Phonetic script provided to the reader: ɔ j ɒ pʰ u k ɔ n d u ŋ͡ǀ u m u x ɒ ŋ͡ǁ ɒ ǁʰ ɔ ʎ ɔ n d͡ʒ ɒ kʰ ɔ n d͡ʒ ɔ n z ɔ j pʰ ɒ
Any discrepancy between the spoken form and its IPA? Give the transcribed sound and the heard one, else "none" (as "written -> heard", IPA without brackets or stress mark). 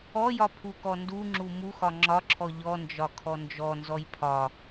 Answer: ŋ͡ǀ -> ŋ͡ǁ